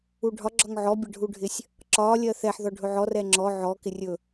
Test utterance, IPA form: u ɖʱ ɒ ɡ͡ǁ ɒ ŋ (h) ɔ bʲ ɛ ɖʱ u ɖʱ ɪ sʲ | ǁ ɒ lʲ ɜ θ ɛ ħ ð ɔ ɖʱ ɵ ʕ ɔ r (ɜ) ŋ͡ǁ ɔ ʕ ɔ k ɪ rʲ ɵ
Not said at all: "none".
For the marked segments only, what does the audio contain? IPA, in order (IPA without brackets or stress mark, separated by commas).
ʕ, ɛ